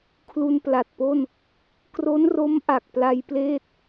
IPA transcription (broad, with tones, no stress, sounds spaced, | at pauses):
kʰ l u˧ n p l a˨˩ t̚ p o˥˩ n | k r o˦˥ n r o˦˥ m ʔ a˨˩ k̚ p l a˧ j p l eː˥˩ t̚